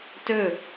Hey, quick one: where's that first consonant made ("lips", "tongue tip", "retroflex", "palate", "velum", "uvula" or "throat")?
tongue tip